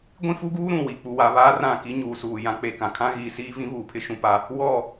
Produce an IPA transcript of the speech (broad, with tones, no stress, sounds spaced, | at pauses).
ɡʷ ĩ˦ f u˦ ɡ uː˦ ɾ ũ˨ w i˨ k͡p u˨ w a˨ β aː˦ r ã˦˨ k i˦ ɲ uː˨ s uː˨ j ã˦ k͡p e˦ k ã˨ kʰ ã˦ ɣ iː˨ s iː˦ v ĩ˦ β uː˨ pʰ ɪ˦ ʃ ũ˦ p a˦ | w ɔ˦˨